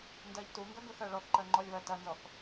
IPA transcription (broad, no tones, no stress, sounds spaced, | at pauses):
n d ɜ ʎ t u ŋ ɡ ɐ ɡ ɵ x ɜ ɭ ɔ θ ǃ ɜ ŋ͡ǃ ɔ lʲ β ɜ t ɐ n z ɔ θ